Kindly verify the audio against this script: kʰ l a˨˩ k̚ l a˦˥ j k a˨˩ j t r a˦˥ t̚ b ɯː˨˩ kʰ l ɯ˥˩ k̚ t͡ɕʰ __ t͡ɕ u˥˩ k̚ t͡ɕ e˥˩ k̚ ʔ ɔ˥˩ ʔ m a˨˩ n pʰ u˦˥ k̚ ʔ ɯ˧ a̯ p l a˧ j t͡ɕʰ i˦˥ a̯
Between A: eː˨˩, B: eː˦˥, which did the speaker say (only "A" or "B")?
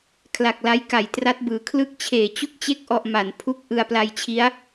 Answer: A